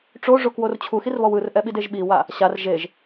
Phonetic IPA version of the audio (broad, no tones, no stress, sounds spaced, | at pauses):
ʈ͡ʂ o ʐ o k w o r t͡ɕʰ u x i r β ɔ w ɯ r ʔ ɛ ɓ i d e ʒ ɓ i w a | ɕ a r ʒ e ʒ